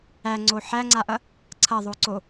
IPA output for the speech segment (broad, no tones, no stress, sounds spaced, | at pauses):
æ ŋ͡ǀ o ħ æ ŋ͡ǀ a ʔ ɐ | ǀʰ ɐ ðˤ o ǀ o